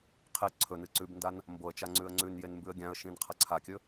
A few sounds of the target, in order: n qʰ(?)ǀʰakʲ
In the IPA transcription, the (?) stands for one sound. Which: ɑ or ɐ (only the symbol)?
ɐ